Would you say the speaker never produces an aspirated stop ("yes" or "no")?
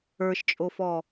yes